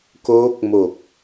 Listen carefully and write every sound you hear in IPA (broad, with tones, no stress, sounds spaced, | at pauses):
k oː˦˥ k̚ m o˨˩ k̚